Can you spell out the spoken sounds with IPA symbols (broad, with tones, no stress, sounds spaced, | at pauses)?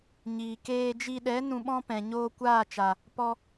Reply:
ɲ iː˨ k eː˧ d͡ʒ i˧ ɗ ɛ˨˦ n ũ˧ ɓ ɔ̃˦ p ɛ̃˨ ɲ oː˧ kʷ aː˦˨ t͡ʃ a˨ | p ɔ˧